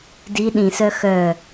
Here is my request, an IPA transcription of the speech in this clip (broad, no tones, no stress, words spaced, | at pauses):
di ɗĩsœ xœ